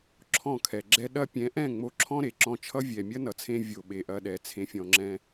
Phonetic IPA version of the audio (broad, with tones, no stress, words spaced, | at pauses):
ǁʰɔ̃˦˨kʰɛ˨ɡ͡ǁɛ˦ ɗɐ˧pʲɛ̃˨˦ʔɛ̃˦˨ ŋ͡mo˧ǁʰɔ̃˦ɾe˨ ǁɔ̃˧t͡ʃʰʌ˦ vʲɛ˨mʲɐ˦nʌ˨t͡sʰẽ˧ vʲo˧ɓe˧ʔɐ˦ɗɛ˨˦ t͡sʰẽ˦fʲɔ̃˧ ŋ͡ǁɛ̃˧